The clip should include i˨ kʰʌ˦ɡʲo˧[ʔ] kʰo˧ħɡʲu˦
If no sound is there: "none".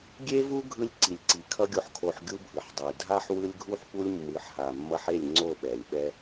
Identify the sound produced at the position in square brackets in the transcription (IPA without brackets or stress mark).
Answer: ħ